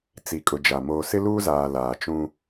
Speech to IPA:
t͡s i˨ kʼ ʊ˨ d͡ʒ a˨ m oː˨ s ɪ˦ l uː˦ z aː˨ l aː˨ t͡ʃ ũ˦

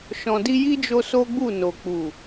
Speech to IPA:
ʃ ɔ̃˨ d i˧ j i˦ d͡ʒ o˧ s o˦ ɡ͡b u˦˨ n o˨ k͡p u˨

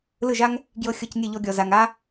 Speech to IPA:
l ɯ˦˨ ʒ a˦ ŋ | ɡ j ɤ˧ xʲ ɤ˧ c nʲ ɛ˦˨ ʎ ɔ˧ ɡʲ ɔ˨ z a˨ ŋ a˦

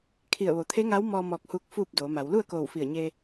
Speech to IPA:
kʰ i˧˩ ə̯ ʋ o˩˧ t̪ʰ e˧˥ ŋ a˧˥ w m ɔː˧ m ɔː˧˩ k̚ h uː˧ k̚ f uː˥˨ p̚ d oː˩˧ m a˩˧ w l u˥˨ ə̯ k oː˧˩ w f i˧˩ ə̯ ɲ e˧

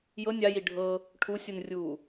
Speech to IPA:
j ɤ nʲ a j i ɖʱ ɤ | ʈʰ u sʲ u n rʲ uː

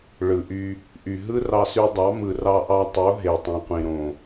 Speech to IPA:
ɭ ɯ˨ ʔ y˧ | ʔ y˨ ɦ ɯ˦ r ɑ˧ s y˧ dˤ ɑ˨˦ m ɯ˨ r ɑ˧ ʔ ɑ˧ tˤ o˨˦ ɦ e˨ tˤ ĩ˨ qʷ ĩ˨ ɾ õ˨

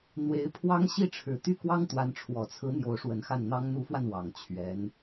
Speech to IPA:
n̪ w e˧˥ ɪ̯ pʰ w ɑ˥ ŋ ɕ i˥˩ ʈ͡ʂʰ ɻ̩˨˩ t̪ y˥˩ k w ɑ˥ ŋ t̪ w a˧˥ n ʈ͡ʂʰ w ɔ˨˩ t͡sʰ ɹ̩˧˥ n̪ j o˧˥ ʊ̯ ʂ w ə˧˥ n x a˥˩ n n̪ ɑ˥ ŋ n̪ u˧˥ f w a˧ n w ɑ˨˩ ŋ t͡ɕʰ ɥ ɛ˧˥ n

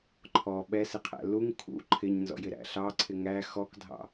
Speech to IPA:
ǃʰ ɔ ɓ ɛ s ɪ qʰ æ̰ l u ŋ kʰ ṵ ǃʰ ɪ ɲ n z ɔ̰ j ɪ ɾ æ̰ ɬ ɑ ǀʰ ɪ ŋ æ x ɔ k dʱ ɑ̰

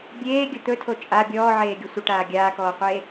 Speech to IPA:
bʲ eː ɡʲ ə t̪ ɵ tʰ o t͡ʃʼ a bʲ ɔː ʕ eː ɡʲ ɵ sʷ ə ʈ aː ɡʲ aː k ɔː qʷ eː

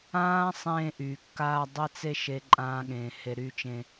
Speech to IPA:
ãː˦ sˤ ẽː˧ ʔ y˨ kː aː˧ dˤ e˦ t͡s e˦ ʃ e˦ ǃʼ ãː˦ ɠ ẽː˧ h e˧ ɾ y˧ t͡ʃ ẽ˧

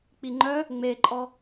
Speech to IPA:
k͡p i ŋ͡ǃ œ | ŋ͡m e ǃʼ ɔ

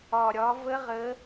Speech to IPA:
ɒ˨˩ ɾʲ ɒ˨˦ v ə˦˥ ʁ ə˨˦

